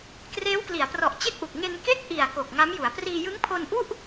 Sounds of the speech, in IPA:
kreː˦˥wkli˩˦a̯prɔ˨˩ʔ t͡ɕe˥˩k̚ʔu˨˩k̚ ŋe˧nke˥˩k̚ ʔi˨˩a̯ ko˨˩k̚ŋa˦˥mju˩˦a̯ priː˧jɯ˦˥ŋpʰo˧nʔu˥˩ʔ

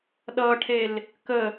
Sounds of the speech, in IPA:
ɗʌʈʰel | kə

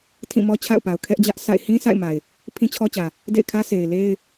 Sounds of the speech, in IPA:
tʰĩ˦˨mɔ˦t͡ɕʰa̰˦˨ʊ̯pa˨ʊ̯ kʰɛ˦ʔd͡ʑä˦ʔsa̰˦˨ɪ̯ hĩ˦ sa̰˦˨ɪ̯ma˨ɪ̯ | pʰĩ˦t͡ɕʰɔ˦t͡ɕä˨ | dḛ˦˨ɪ̯kʰä˦ sʰe˨ɪ̯le˦ɪ̯

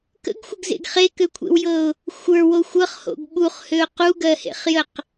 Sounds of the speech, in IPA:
kə̰ɡxʷəɡzḛɡ χekøkʷʰḛwjɤʊ̯ | xʷə˞wo xʷɤχho̰ɡ ɓuχhøʊ̯ quɡɜhḛχjəq

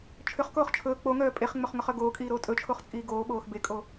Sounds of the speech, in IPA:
t͡ʃʰʏχkoːχ t͡ʃʰɵː k͡poŋœː pʼeχŋ͡mɵχŋɵχœ ɡoːkʼiːɾoː tʼɵt͡ʃʰoχt͡sʼiː ɡoːɓoːx bekʼo

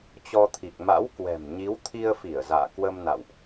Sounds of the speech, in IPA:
t͡ɕɔ˧t̪ʰi˨˩k̚ ma̰˧˥wkwɛ̤˨˩m ɲi˨˦wt̪ʰi˧ə̯fi˧˩ə̯za̰ː˧˨ kwə˧mna̰˧˨wʔ

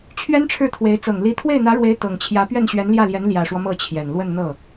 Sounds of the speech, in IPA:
t͡ɕʰɥɛ˥nʈ͡ʂʰɻ̩˥˩t̪ʰwe˧˥ɪ̯ t͡sɤ˨˩ŋli˧˥ t̪ʰwe˥˩ɪ̯n̪ä˧˥ɻwe˧˥ɪ̯ t̪ɤ˨˩ŋt͡ɕʰjä˧˥ pɥɛ˥˩nɕɥɛ˧˥nljä˥˩ljɛ˧˥n ljä˨˩ʂwɔ˦ mɤ˥˩t͡ɕʰjɛ˨˩n lwə˥˧nn̪ɤ˥˩

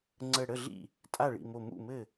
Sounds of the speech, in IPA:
ŋ͡ǀə˧˩ɽə˥˩ɮḭ˥˩ | tʼa˥˩ɭḭ˧˩mo˧˩ mṵ˥˩mɘ˥˩

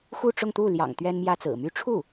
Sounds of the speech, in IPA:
xu˥˧ʈ͡ʂʊ˥˧ŋt̪u˥˩ ljɑ̰˨˩ŋ t̪ɥɛ˥nmjä˥t͡sɹ̩˨˩ my˧˥ʈ͡ʂʰu˥˩

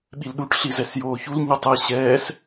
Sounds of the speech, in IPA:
ɓilɗuʈ ɬizɛsjoːçul ɲɯtˤe ɕɛːs

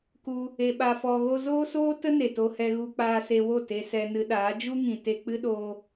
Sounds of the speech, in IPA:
ku˧ | e˧ɓa˧fɔ˧ɣo˦ zoː˦soː˦tə˦ ne˨to˧hɛ˧ɣu˧ k͡paː˧se˧wo˦˨ te˧sɛ˧nɨ˧ɗaː˨˦ d͡ʒu˦ŋĩ˨te˧ k͡pɨ˦ ɗoː˦

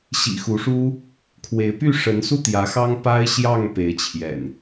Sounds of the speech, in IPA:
ɕḭ˨˩xu˨˦ʂu˦ | kʰwe˨˦ɪ̯py˥˨ ʂə˨˦nsu˥˨ t̪jä˨˦xɑ˦ŋ pa˦ɪ̯ɕjɑ˥˨ŋpe˨˦ɪ̯ t͡ɕʰjɛ̰˨˩n

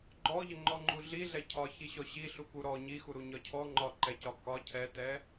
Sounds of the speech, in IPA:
ɡ͡ǃɔʎəŋ͡ǃɔŋ͡ǃu ɮi ɮɛcʰɒ çiɕɔɕi ɬukuɾɔ ɲixuɾu ɲɒcʰɔ ŋ͡ǃɒǃɛcɒ kɒ cʰɛtɛ

